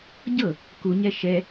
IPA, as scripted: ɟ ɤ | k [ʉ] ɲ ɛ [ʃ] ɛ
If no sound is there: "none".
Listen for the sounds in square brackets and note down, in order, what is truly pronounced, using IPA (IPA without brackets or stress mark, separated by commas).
u, ʃ